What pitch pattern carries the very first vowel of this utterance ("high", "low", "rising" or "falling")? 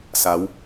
rising